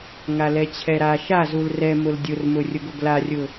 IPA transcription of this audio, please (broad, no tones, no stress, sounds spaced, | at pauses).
ŋ a l ɛ t͡ɕʰ ɛ ɾ a ʃ a z u l r ɛ m ʊ l dʲ ʊ r m ʊ rʲ ʊ ɡ ʊ ɡ l a rʲ ʊ